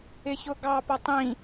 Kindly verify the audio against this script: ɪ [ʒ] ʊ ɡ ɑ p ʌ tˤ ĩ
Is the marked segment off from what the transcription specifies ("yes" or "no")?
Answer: yes